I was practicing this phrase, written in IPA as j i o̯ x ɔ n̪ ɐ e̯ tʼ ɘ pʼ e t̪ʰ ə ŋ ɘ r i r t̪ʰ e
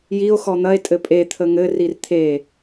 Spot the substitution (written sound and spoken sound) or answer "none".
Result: none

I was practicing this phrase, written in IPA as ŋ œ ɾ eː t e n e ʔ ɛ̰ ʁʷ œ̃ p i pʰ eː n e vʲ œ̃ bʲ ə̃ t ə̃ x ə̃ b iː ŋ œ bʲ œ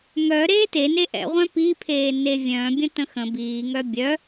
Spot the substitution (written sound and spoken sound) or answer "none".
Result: none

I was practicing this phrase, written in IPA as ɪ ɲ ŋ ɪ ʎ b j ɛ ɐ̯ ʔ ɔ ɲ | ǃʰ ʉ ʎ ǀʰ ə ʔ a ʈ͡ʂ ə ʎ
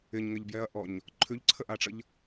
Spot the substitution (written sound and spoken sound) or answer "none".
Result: none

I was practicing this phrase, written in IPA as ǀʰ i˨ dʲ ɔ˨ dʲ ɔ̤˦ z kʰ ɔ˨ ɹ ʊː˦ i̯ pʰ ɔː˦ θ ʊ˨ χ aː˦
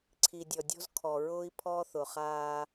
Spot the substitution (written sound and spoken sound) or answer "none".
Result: none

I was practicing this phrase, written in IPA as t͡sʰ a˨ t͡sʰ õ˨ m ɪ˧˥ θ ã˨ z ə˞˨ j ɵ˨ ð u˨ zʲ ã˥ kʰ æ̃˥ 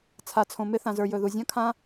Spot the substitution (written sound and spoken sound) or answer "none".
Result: æ̃˥ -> ã˥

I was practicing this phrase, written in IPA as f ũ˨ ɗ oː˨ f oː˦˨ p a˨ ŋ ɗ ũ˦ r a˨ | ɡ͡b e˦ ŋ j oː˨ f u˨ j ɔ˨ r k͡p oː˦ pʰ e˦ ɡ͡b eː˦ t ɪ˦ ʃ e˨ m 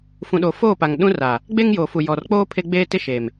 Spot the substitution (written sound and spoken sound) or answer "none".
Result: none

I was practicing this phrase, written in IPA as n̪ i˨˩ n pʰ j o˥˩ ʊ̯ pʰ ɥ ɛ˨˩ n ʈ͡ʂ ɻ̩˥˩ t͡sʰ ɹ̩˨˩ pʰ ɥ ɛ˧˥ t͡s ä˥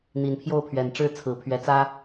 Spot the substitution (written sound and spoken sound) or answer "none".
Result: none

